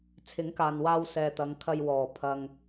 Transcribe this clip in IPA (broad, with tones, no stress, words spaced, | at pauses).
t͡sʰɪ˨˥ŋkaː˨nwaː˧w sɛː˨t̪ɐ˨˧ŋkʰɐ˧j wɔː˨˩ pʰɐ˧ŋ